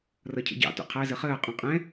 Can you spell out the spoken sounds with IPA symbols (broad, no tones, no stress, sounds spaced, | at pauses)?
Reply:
r ʌ cʰ ə̰ ɟ ɑ̰ t ṵ qʰ æ z ə χ əː qʼ ũ qʼ ɛ̃